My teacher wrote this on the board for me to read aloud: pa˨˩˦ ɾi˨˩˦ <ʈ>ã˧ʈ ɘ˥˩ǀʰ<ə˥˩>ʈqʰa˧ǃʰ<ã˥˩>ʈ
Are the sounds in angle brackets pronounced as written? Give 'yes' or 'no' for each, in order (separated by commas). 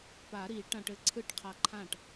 yes, no, yes